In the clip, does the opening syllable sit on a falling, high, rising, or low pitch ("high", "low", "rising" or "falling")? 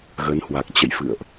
rising